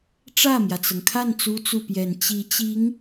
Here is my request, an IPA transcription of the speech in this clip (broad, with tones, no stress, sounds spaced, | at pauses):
ʈ͡ʂ ä˥˩ m j ä˩ t͡s ɤ˩ ŋ kʰ a˥˩ n t͡s u˥ t͡s u˥˩ p j ɛ˨˩ n t͡ɕ i˧˥ t͡ɕ i˧˥ ŋ